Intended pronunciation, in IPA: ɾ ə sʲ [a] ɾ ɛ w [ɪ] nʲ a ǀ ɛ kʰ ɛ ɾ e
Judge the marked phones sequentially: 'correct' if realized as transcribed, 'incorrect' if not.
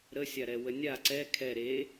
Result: correct, incorrect: ə

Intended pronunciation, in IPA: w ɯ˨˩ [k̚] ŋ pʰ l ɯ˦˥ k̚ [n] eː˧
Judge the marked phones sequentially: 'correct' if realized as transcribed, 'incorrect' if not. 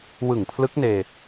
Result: incorrect: none, correct

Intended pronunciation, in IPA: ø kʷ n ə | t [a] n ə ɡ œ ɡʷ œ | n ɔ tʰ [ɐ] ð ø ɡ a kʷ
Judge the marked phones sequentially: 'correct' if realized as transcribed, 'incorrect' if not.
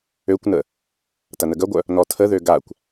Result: incorrect: ɐ, incorrect: ə

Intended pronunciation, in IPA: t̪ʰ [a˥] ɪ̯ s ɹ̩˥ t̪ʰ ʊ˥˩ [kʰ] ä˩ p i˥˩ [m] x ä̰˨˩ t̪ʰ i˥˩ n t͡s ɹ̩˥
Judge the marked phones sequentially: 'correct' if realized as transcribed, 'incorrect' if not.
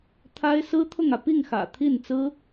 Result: correct, incorrect: ŋ, incorrect: ŋ

